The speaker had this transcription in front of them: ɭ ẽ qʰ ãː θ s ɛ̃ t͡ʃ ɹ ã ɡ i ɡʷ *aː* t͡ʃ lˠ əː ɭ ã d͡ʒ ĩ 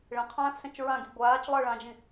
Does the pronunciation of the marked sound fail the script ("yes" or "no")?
no